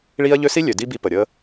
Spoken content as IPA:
ɭ iː˦ ɐ̯ ʎ ø˦ s i˥ lʲ ø˩ d i˦ b i˨ p ə˩ ɾʲ əː˦

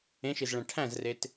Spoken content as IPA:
ẽ ʃ i z ɭ æ̃ ʈʰ æ̃ z r e t

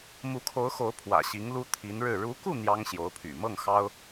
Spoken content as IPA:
m u˧˥ kʰ o˧˥ ʊ̯ x o˧˥ ʊ̯ pʰ w ä̰˨˩ ɕ i˧˥ ŋ l u˥ t̪ʰ i˧˥ n ɻ ɻ̩˥˩ ɻ u˧˥ k u˥˩ n̪ j ɑ˥ ŋ ɕ j o˧˥ ʊ̯ pʰ y̰˨˩ m ɤ˥˩ ŋ x ɑ˥ ʊ̯

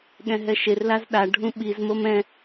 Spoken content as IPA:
ɠ ɛ̃ ɦ ɛ ʃ e r l a z ɗ a ɖʱ ũ ɓ i z m o m ɛ̃

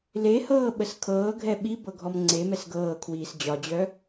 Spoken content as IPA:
l e h ɤː ɓ ə s kʰ ɤː ɡʱ ɛ ɓ i b ɤ ɡʱ ɔ m ŋ͡ǀ e m ɛ s ɡ ɤː kʰ w iː s d͡ʑ ɒ d͡ʑ œ

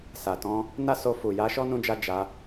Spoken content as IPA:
s a˨ t ɔ̃˧ | n a˦ s o˧ f u˨ j a˧ ʃ ɔ˦ n ũ˧ d͡ʒ a˧ d͡ʒ a˧

